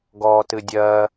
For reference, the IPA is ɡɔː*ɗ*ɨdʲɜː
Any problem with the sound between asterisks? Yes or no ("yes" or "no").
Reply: yes